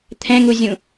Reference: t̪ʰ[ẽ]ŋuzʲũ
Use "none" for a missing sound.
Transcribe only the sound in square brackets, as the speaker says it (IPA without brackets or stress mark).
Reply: ɛ̃